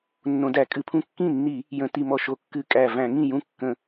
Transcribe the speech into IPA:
nː õ˧˩˧ d æ˧˩˧ kʼ ɨ˧˩˧ pʰ ũ˥˩ kː ĩ˥˩ nː i˧˩˧ | j ə̃˧˩˧ t i˧˩˧ m ɔ˥˩ ʃ o˧˩˧ kː ɨ˥˩ kʼ æ˥˩ v æ̃˧˩˧ ŋ ĩ˥˩ j ũ˥˩ kː ə̃˧˩˧

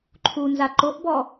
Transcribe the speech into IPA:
ǃʰ u n z a ǃ o ʔ b ɔ

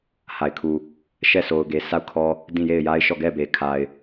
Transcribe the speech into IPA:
h a˨ ɪ̯ kʰ u˨ | ʃ ɛ˦˨ s o˨ ʊ̯ ɡ e˨ s a˦˨ ʊ̯ kʰ ɔ˦ | d ĩ˦˨ j e˦˨ ɪ̯ j a˦ ɪ̯ ʃ ɔ˦˨ ɡ ɛ˦˨ b e˨ kʰ a˨ ɪ̯

